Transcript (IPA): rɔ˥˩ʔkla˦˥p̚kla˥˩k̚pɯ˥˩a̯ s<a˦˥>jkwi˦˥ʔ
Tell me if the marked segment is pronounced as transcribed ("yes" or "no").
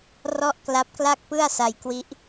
no